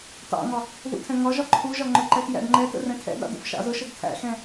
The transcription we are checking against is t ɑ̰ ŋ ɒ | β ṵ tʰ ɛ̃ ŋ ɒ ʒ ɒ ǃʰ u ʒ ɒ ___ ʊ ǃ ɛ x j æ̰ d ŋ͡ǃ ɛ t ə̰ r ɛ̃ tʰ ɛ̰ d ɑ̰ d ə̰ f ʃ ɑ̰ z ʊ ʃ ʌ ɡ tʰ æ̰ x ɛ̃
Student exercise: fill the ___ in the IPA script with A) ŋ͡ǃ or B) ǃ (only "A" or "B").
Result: A